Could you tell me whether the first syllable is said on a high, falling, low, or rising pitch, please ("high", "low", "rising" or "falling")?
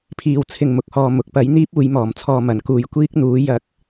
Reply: low